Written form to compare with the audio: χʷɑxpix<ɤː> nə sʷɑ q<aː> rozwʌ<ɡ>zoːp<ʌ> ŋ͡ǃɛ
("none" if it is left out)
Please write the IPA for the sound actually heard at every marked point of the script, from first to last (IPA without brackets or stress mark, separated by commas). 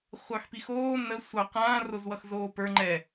oː, ãː, x, ə˞